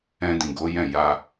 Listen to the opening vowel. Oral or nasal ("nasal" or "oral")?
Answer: nasal